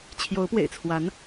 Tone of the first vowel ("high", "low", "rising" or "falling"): rising